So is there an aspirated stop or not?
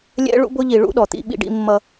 no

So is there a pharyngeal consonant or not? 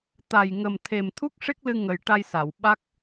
no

